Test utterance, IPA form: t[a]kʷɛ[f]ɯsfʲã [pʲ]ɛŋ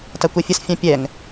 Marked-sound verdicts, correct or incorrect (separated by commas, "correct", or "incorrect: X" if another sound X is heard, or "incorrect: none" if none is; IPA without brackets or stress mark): correct, incorrect: fʲ, correct